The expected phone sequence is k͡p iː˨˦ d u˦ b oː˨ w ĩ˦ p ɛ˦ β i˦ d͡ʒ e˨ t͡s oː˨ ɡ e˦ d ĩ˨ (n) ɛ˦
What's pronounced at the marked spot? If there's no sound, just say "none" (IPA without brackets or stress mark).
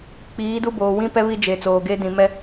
m